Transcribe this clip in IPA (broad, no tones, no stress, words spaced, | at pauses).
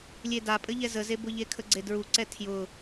lʲedapʼɘʎɛ zəzebʊʎe kʰəɡ͡ǀedɹuǀɛ tʰjʊ